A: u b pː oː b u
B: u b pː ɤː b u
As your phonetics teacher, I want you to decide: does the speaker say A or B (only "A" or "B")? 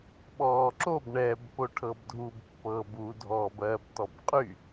B